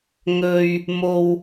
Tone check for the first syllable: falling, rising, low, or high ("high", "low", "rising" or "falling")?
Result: low